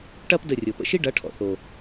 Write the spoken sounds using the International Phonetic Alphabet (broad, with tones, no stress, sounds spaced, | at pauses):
ʈ ɐ˦ p d ə˦˨ rʲ o˨ p ə̰˧ ʃ i˦ ɖ ɐ˨˦ ʈʰ ɔ̰˨ θ o˨